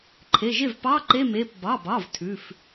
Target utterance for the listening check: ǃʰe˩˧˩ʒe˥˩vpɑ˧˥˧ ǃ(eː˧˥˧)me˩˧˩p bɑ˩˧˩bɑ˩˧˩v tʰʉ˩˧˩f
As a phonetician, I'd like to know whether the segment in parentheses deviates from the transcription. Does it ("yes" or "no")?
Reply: yes